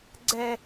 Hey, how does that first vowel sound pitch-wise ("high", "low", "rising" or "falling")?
high